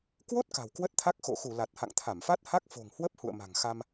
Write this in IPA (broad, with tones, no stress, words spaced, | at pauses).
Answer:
kwo˦˥t̚ ka̤˨˩wkwə˦˥t̚t̪ʰa˦˥k̚ xo̰˧˨xu˧˩ la˨˩t̚ha̰˧˨ŋt̪ʰa˧˩mfa˦˥t̚ ha˦˥k̚fo̤˨˩ŋhwə˦˥p̚ hṵ˧˨ə̯ma̤˨˩ŋxa˧m